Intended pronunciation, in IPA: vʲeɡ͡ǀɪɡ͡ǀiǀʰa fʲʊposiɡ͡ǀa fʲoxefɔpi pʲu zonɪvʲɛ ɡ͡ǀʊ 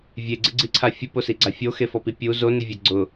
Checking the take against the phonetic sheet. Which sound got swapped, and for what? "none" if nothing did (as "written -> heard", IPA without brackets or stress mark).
none